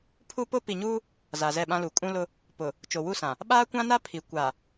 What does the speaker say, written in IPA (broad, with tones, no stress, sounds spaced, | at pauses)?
pʰ u˦ p ʊ˦ p i˨ ɲ uː˦ | z a˨ z ɛ˦˨ ɓ ã˦ l u˨ kʼ ũ˦ l ʊ˦ | p ʊ˨ | t͡ʃ o˨ w u˦˨ s ã˨ | ɓ aː˦ kʷ ã˦ n a˦ pʰ i˨ kʷ a˨